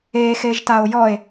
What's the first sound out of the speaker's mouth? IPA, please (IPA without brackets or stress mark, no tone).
e